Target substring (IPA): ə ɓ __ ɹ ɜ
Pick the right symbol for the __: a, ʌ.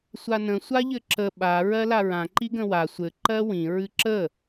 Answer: a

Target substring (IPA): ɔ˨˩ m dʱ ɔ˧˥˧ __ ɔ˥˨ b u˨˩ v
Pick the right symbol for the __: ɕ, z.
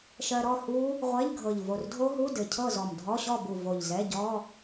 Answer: ɕ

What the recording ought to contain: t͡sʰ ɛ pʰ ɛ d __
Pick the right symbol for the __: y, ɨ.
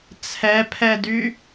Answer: y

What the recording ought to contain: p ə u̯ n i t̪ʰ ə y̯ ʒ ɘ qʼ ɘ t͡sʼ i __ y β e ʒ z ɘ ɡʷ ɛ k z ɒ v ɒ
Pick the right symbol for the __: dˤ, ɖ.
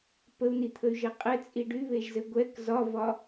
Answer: ɖ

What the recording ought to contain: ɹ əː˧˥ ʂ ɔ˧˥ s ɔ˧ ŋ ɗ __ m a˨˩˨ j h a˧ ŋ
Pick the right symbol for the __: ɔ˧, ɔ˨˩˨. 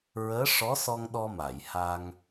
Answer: ɔ˧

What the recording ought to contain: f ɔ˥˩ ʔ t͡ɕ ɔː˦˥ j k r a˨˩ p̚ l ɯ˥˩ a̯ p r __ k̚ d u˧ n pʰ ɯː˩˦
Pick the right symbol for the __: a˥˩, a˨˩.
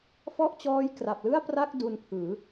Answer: a˥˩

